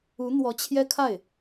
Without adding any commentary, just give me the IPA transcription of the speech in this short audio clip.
u˧˥ n̪ w ɔ˧˥ t͡ɕʰ j ɛ˥ kʰ a˥˩ ɪ̯

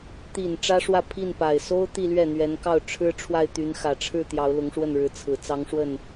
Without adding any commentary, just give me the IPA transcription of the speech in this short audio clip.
t̪ i˨˩ n ʈ͡ʂ ä˥ ʂ w ä˥˧ pʰ i˥˩ n p a˨˩ ɪ̯ s o˥ ʊ̯ t̪ i˥˧ l ɥ ɛ˥˩ n̪ ɥ ɛ˧˥ n k ɑ˥˩ ʊ̯ ʈ͡ʂʰ ɻ̩˥ ʈ͡ʂʰ w a˥˩ ɪ̯ t̪ y˧˥ n x ä˨˩ ʈ͡ʂʰ ɻ̩˥˩ t̪ j ɑ˧˥ ʊ̯ l ʊ˧˥ ŋ ʂ w ə˥˩ n ɻ ɻ̩˧˥ t͡sʰ ɹ̩˨˩ t͡s ɑ˧˥ ŋ ʂ w ə˥˩ n

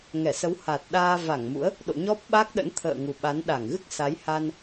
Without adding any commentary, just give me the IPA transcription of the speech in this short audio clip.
ŋ ɛ˧˩ s ə˨˦ w h a˨˩ t̚ ɗ aː˧ v a˧˩ ŋ m ṵ˧˥ ə̯ | ɗ o̰˧˨ ɲ ɔ˦˥ p̚ ɓ a˦˥ k̚ ɗ ə̰˧˥ n t̪ʰ ə̰ː˧˨ ŋ u˨˩ ɓ a˨˦ n ɗ a˧˩ ŋ ɣ ɨ˦˥ k̚ s a˨˦ j h a˧ n

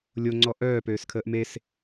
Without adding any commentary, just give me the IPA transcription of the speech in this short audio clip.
lʲ o ŋ͡ǀ ɔ ʔ œː p øː s kʰ əː ʔ m e s

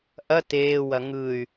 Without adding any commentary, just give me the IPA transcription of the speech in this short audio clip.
ʔ ɐ t eː w ɐ ŋ ɯ y̯

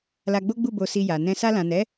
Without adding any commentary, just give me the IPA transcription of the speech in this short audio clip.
l a˧ ɡ͡b o˦ ɡ͡b u˦˨ b o˧ s i˧ j a˨ n ɛ̃˧ s a˧ l ã˨ n ɛ˨˦

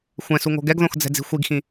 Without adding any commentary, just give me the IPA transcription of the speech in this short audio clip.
xʷ ɛ̃ s u ŋ o̤ ɡ ɛ ɡ ð õ x d͡z ɛ̤ d͡z i̤ xʷ i ɡ x ĩ

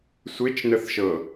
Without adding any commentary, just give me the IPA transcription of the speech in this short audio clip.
sʷ e t͡ʃ n ə θ ʃ ɤ

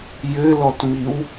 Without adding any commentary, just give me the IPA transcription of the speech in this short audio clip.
j ɘ l ɔ t m i w

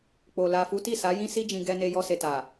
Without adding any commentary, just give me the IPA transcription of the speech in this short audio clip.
k͡p o˨ l a˨ f u˨˦ t i˦˨ s a˨˦ j ĩ˦ s i˧ d͡ʒ ĩ˨ ɡ ɛ˧ n e˧ j ɔ˧ s e˨ t a˨

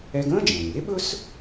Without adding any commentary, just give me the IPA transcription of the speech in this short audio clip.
ɛ˥ ɡ ə̃ː˥ d͡ʒ ɛ̃ː˩ ɲ e˥ ɓ ɵ˥ s

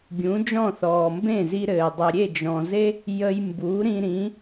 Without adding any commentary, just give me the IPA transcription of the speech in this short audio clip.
ɡʲ ũ˩˥ d͡ʒ ɔ̃˥˩ θ ɔː˩ m b ẽ˥˩ z i˧ ɾ ɘː˩ dˤ ɘ˩ ɾʲ e˥˩ d͡ʒ ɔ̃˩ z e˥ | j ə˧ j m b u˩˥ ɾ ĩ˧ ɾ ĩ˩˥

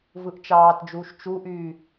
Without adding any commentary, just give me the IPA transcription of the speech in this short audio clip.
v ɯ ʔ t͡ʃ ɑː t d͡ʒ uː ʃ t͡ʃ u ʔ yː

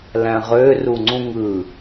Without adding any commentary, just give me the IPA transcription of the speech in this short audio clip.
l æ̃ ʁ ø r u ŋ͡ǀ ũ ŋ ɯ

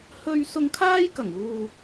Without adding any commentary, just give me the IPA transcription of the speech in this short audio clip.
h ɵ˥ ɥ s ʊ˧ ŋ kʰ aː˥ j k ɐ˨˩ ŋ uː˨

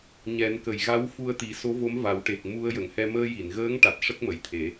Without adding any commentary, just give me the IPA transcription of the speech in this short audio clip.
ɲ ɛ˨˩˦ n k ə˨˩ j ɣ a˧˥ w f u˧ ə̯ t̪ i˨˩˦ s o˧˥ v o˧˥ m v a˨˩˦ w ʈ e˨˩ k̚ m u˧ ə̯ j ə˨˩˨ ŋ h ɛ˧ m əː˧ j i˨˩˨ n ɣ əː˧˥ ŋ ʈ a˨˩ t̚ ʂ ə˦˥ k̚ m ə˨˩˨ j t̪ʰ e˨˩˦

